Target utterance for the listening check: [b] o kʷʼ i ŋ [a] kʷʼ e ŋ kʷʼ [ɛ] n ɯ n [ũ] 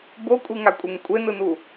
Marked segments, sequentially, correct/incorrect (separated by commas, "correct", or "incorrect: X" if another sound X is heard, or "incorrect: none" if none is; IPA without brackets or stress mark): correct, correct, incorrect: e, incorrect: u